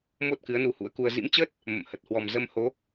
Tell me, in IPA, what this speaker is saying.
m o˦˥ t̚ k ɨ˨˦ ə̯ n u˧ h ṵ˧˥ ə̯ k u˧ ə̯ z ḭ˧˥ m t͡ɕ əː˦˥ t̚ | m ə̰˧˨ m h ə˨˩ t̚ h w ɔ˨˩ m z ə˧ m h o˨˦

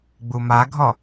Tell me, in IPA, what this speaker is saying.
ɡ͡b u m a ɡʱ ɔ

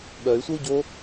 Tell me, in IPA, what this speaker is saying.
ɓ œ y̯ sʷ ɐ u̯ ɟ o

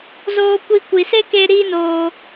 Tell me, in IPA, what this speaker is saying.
z oː˧ kʷ i˧ kʷ i˨ s e˦ k e˧ ɾ iː˦ n oː˧

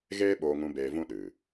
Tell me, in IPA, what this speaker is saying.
ɣ eː˦ ɓ oː˧ ŋ ũ˧ b eː˧ v ũ˦ ɗ ɨ˨

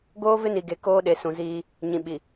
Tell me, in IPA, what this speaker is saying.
ɡ oː˦ v ɪ˦ n i˨ ɡ e˨ k oː˦ ɗ e˨ s ũ˨ z iː˦ | ɲ ĩ˨ ɓ i˨

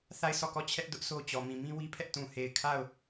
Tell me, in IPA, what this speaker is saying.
θ a˦˨ ɪ̯ s ɔ˦˨ k ɔ˦˨ t͡ɕʰ ɛ˦ ʔ d ʊ˦ ʔ s o˦ t͡ɕ ɔ˨ m ĩ˨ m ĩ˦ w i˦ pʰ ɛ˦ ʔ t ũ˨ h e˨ ɪ̯ kʰ a˦˨ ʊ̯

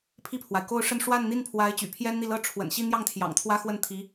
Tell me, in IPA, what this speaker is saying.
pʰ i˥˩ pʰ w a˩ ɪ̯ k o˥˧ ʊ̯ ʂ ə˥˧ n ʂ w a˥˧ n n̪ i˥˩ n pʰ w a˧˥ ɪ̯ t͡ɕ y̰˨˩ pʰ j ɛ˥ n n̪ i˥˩ l ɤ˥ ʈ͡ʂʰ w ə̰˨˩ n ɕ i˥˧ n̪ j ɑ˥˩ ŋ t̪ʰ j ɑ̰˨˩ ŋ t̪ʰ w ä˥ x w ə˥˩ n t̪ʰ i˧˥

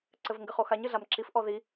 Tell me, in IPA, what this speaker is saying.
ǀ ɘ v ŋ ɡ ɘ χ o x a ɲ ɨ ɮ a m ǁ i f ʔ ɔ ð i

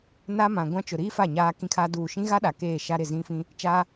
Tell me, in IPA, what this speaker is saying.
n a˦ m ã˨ ɡʷ ã˦ t͡ʃ ʊ˨ ɾ iː˦ f a˦˨ ɲ aː˦ k ĩ˦ kʰ a˦ d uː˦˨ ʃ ĩ˦ ɣ a˦ ɗ a˨ k eː˦˨ ʃ a˦ ɾ ɪ˦˨ z ĩ˦ f ĩ˦ | t͡ʃ a˦

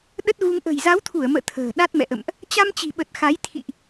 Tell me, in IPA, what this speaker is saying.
ɗ ə˦˥ t̚ ɣ u˧ ŋ ʔ ə̤˨˩ j z a˨˦ w t̪ʰ u˧˩ ə̯ m ə̰ː˧˨ t̪ʰ ə̤ː˨˩ ɗ a˦˥ t̚ m ɛ̰˧˨ ʔ ə̰˧˨ m ʔ | t͡ɕ a˧ m t͡ɕ i̤˨˩ ɓ ə˨˩ t̚ x a˨˦ j t̪ʰ ḭ˧˨ ʔ

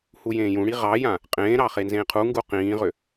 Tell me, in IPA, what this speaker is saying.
h u j ẽː j ũ ɽ i ʁ ɑ j ã | qʼ ẽː ɾ ɑ χ e n z ẽː qʰ u ŋ ɡ u q ĩː ʁ ʏ

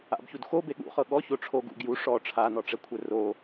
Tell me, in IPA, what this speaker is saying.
a̰ b ç u d x o b e ɠ ṵ χ ɤ ɠ ɔ ç o ʈ͡ʂʰ o ɡ ṵ ɡ j u ʂ ɔ ʈ͡ʂʰ a n ɔ ʈ͡ʂ ɛ kʷʰ ɛ r o

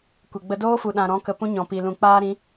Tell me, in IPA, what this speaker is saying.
kʷ e˨ ɡ͡b ə˧ d oː˦ f u˨ ɗ ã˨ ɾ ɔ̃˨˦ k ə˨ p ũ˦ ɲ ɔ̃˨ p i˨ l ũ˨ k͡p aː˦ ɾ ĩ˨˦

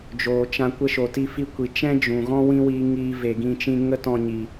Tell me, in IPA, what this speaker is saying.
d͡ʒ oː˨ t͡ʃ ã˧ kʷ ə˧ ʃ o˨ t i˧ f i˧ kʷ i˨ t͡ʃ ɛ̃˦ d͡ʒ ũ˨ ɣ ɔ̃˦ w ĩ˦ w iː˧ ŋ iː˧ v e˨ ɡ ĩ˧ t͡ʃ ĩ˦ ŋ ə˦ t ɔ̃˧ ɲ i˨

